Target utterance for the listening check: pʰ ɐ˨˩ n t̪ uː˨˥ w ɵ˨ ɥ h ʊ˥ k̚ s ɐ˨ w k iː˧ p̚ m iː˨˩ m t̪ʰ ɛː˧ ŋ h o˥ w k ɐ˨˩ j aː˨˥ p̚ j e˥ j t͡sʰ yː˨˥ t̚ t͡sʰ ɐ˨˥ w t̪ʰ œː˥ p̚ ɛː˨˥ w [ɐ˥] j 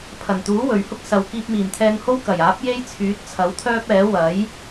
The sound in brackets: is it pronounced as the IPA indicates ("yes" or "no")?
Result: no